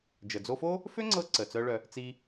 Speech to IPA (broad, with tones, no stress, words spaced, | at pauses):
d͡ʒə˩d͡zo˧fo˥ | fø˥ŋ͡ǀɤ˧ǀə˩ t͡sœ˥ɭœ˧ | t͡si˧